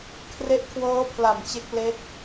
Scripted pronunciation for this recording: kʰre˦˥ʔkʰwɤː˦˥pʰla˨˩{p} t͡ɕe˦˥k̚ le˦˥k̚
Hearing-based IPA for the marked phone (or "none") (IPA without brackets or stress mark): m